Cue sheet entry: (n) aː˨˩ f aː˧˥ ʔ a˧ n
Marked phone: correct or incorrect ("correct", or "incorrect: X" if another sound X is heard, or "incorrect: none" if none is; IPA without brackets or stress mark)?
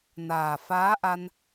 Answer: correct